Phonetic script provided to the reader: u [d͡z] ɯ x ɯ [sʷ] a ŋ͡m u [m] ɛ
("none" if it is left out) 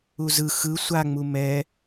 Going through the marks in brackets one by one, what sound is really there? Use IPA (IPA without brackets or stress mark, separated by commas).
z, sʷ, m